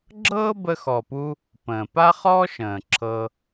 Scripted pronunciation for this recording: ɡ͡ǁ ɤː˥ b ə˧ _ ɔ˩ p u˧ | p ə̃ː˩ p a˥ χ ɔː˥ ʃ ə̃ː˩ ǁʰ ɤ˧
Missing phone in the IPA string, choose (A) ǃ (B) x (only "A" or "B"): B